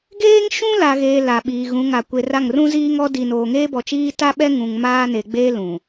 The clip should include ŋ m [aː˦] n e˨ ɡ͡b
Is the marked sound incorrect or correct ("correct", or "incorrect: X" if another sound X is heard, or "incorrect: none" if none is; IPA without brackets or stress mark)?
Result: correct